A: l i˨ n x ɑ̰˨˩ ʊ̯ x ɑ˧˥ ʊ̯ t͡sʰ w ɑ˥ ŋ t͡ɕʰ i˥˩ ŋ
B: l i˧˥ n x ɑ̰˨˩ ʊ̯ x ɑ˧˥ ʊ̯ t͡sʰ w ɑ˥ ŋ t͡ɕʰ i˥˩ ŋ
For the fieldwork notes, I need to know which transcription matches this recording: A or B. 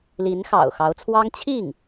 B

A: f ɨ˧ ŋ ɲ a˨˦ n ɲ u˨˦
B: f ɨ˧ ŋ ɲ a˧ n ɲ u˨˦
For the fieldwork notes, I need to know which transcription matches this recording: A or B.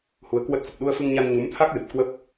B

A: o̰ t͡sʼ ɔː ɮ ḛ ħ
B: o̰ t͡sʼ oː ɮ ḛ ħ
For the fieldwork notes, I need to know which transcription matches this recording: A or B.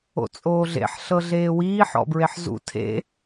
B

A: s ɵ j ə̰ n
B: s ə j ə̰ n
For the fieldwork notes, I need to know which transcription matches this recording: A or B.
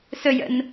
A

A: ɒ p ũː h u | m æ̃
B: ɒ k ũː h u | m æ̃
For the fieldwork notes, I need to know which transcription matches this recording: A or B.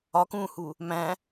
B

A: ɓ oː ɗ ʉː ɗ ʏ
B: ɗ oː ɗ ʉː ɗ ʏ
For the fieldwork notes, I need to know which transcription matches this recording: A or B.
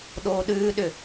B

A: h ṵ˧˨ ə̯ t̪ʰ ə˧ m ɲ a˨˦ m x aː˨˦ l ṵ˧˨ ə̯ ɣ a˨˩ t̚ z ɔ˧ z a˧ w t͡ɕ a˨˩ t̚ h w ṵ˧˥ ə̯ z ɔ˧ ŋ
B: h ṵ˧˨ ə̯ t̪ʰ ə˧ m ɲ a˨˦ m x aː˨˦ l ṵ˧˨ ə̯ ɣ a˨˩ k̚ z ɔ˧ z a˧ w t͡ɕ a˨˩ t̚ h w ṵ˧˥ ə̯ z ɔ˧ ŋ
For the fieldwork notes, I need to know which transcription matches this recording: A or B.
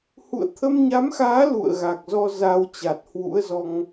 B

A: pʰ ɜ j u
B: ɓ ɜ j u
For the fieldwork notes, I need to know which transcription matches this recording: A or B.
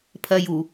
A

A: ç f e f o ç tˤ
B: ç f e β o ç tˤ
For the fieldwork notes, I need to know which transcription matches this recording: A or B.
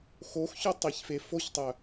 A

